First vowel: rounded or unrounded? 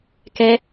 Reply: unrounded